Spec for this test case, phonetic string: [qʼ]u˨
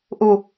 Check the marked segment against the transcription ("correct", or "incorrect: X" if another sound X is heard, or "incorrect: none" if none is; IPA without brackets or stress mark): incorrect: ʔ